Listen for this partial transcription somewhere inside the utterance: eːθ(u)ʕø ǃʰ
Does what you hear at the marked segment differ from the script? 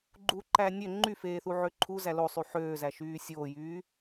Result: no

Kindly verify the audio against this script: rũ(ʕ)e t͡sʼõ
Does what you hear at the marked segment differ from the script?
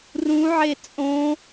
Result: no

